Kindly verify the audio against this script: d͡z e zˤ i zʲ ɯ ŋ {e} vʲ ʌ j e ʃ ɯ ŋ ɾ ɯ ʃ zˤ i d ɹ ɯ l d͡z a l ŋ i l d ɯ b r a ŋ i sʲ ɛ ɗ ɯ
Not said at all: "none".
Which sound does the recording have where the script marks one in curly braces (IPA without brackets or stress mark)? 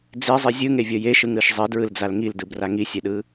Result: e